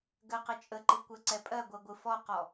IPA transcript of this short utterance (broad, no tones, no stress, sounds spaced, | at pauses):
ɡ ɜ q ɘ t͡ʃʼ ə ǃ ɨ kʷ ɜ ǀ ɛ pʼ ɜ ɡʷ ɜ ɡʷ ɨ f ɔ q ɔ